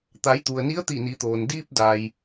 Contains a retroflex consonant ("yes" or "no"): no